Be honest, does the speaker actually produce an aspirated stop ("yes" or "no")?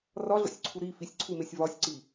yes